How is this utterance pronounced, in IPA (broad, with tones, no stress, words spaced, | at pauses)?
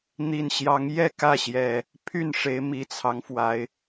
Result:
n̪i˨˩nɕjɑ˨˦ŋjɛ˥˨ kä˥˨ɕjɛ˨˩ | pʰy˥˨nʂe˨˦ɪ̯mi˨˩t͡sʰɑ˦ŋ fwa˨˦ɪ̯